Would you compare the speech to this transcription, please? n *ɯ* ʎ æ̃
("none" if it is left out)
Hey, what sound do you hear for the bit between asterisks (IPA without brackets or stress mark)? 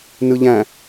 ɯ